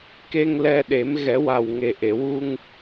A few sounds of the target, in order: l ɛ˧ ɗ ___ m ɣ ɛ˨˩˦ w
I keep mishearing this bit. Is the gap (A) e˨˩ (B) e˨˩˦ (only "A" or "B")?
B